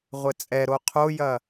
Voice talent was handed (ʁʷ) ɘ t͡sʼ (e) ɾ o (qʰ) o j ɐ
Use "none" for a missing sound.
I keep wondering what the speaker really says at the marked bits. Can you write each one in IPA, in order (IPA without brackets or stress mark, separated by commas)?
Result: ʁʷ, ɛ, qʰ